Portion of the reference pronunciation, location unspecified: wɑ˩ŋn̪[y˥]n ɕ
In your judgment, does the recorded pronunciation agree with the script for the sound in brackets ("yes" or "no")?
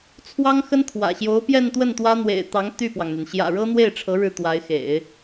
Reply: no